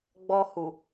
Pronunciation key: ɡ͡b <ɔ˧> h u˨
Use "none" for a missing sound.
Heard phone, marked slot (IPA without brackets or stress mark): ɔ˧